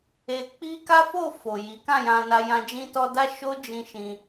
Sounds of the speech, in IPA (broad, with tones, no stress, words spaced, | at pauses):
e˧ k͡pi˦ ka˦fo˦˨ fo˨ji˨˦ kã˦˨jã˧na˧jã˧ d͡ʒĩ˧tɔ˧da˦ʃo˦ d͡ʒĩ˦ʃĩ˧